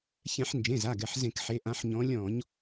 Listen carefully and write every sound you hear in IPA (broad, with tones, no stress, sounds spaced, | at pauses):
ç ɛ̃˧˩˧ ħ n d͡ʒ ẽ˩˧˩ z a˩˧˩ ɡ ɛ˩˧˩ ħ z ẽ˧˩˧ k ħ e˨˦ ʔ ã˨˦ ħ ɲ ɔ̃˨˦ lʲ ɔ̃˧˩˧ ɲ